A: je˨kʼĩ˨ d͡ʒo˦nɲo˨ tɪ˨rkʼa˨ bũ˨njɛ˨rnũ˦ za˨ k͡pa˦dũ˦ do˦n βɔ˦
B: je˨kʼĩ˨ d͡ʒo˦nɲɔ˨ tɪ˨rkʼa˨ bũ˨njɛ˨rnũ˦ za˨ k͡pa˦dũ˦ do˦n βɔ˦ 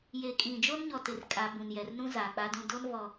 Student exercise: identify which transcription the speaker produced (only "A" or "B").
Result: B